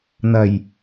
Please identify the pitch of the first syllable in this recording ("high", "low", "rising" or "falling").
low